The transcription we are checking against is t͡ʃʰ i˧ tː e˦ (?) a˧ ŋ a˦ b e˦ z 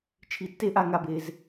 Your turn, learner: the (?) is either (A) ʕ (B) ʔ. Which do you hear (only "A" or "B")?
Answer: B